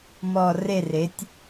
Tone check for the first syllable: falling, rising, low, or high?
low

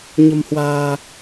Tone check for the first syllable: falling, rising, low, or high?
low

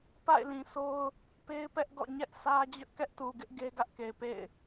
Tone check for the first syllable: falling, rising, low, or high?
falling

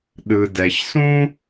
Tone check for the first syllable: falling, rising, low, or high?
low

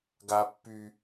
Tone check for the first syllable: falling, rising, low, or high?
high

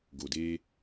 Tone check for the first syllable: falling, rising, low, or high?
low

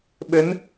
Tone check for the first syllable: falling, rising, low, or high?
rising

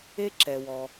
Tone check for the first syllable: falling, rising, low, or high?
high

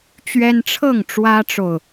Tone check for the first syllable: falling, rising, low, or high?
high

